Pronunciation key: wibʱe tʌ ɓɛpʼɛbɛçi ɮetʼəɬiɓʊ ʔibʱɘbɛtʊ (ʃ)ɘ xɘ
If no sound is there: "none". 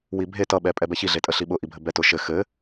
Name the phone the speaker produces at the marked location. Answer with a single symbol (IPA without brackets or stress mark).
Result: ʃ